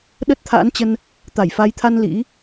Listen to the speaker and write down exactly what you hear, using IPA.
ɗ ə˦˥ t̚ t̪ʰ a̰ː˧˥ n t͡ɕ ə˧ n | t̪ a˧˩ j f a˨˦ j t̪ʰ a˧ n l ḭ˧˥

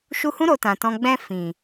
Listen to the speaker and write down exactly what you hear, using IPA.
ʃ u˧ h ũ˦ ɾ o˧ t ã˨ t ɔ̃˧ ɡ͡b ɛ̃˧ f ĩ˨

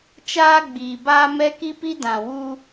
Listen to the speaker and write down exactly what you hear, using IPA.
t͡ʃ aː˦ ɡ͡b iː˨ b aː˦ m ɛ˦ k i˦ p i˦ d ã˨ w u˦

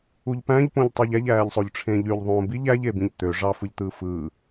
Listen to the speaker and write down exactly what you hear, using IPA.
u ʎ p æ̃ ʎ p õ ʎ tˤ u ʎ æ ʎ æː ʎ sˤ o ʎ ʈ͡ʂʰ ẽ ʎ y ʎ ðˤ õː b i ʎ æ ʎ e b ĩ ʎ t̪ ø ʐ ɑ f ɯ ʎ t̪ ɯː f ɯː

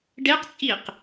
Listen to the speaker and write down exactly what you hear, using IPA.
ɖ e q t͡sʼ i q

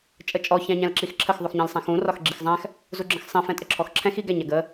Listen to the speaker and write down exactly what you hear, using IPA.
t͡ʃʼ ə t͡ʃʼ ɔ ç æ̃ ɲ æ̃ l ǁ i x ǁʰ ə x ðˤ u x ɲ æ̃ l sˤ æ̃ x ũ r ɒ x ɡ͡ǁ i x zˤ æ̃ x | z u ɡ͡ǁ ə̃ x sˤ ɛ̃ f ɛ̃ tʼ ə ǁʰ ɔ x ǁʰ ɛ̃ x i ɡ æ ɲ æ ɡ ə

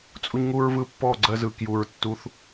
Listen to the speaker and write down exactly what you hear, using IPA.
t͡sʼ u˦ ɲ ŋ u˦ ɹ v ɯ˦ pː ɔ˦˨ ɡ͡ǀ ɜ˧ z ɯ˨ k j u˨ ɹ tː u˧ θ

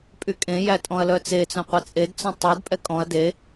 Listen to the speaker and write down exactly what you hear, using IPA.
pʼ y kʼ ẽ j æ tʼ ɔ̃ ɐ̯ l œ t͡s e t͡s œ̃ qʷ ɛ t͡sʼ e d t͡s ɔ̃ tˤ y d pʼ ɛ kʼ ɔ̃ ɐ̯ d e

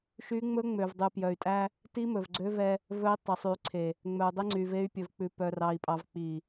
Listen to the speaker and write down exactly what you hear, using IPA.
ʃ y˦ ŋ͡m ɵ˦ ŋ͡m ø˨ v dˤ y˨ p j œ˨ y̯ tʼ æ˦ | t i˦ m ɵ˨ v ɡ͡ǀ ø˦ v ɛ˦ | v ɵ˦ i̯ tˤ œ˨ sˤ y˨ ǀʰ e˨ | ŋ͡m œ˨ u̯ dˤ e˦ ŋ͡ǀ y˨ v e˦ y̯ pʲ ɵ˨ v k͡p ʉ˨ p œ˨ r ɑ˨ i̯ pʼ ɑ˨ v k͡p i˨

